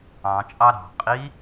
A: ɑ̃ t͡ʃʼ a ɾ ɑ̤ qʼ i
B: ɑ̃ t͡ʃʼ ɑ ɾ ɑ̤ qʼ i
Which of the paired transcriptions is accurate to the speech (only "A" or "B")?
B